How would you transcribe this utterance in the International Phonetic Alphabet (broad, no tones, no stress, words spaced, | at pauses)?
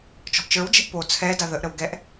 t͡ʃɔ̤ʔt͡ʃə˞wd͡ʒɛ̤ʔ po t͡sʰɛ daðəʔɾəw ɡɛʔ